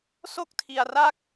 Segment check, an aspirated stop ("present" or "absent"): present